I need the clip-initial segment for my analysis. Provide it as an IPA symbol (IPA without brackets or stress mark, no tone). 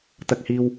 t̪